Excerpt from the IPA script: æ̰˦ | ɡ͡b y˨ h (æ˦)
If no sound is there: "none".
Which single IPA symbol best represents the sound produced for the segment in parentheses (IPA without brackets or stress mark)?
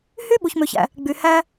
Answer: æ˦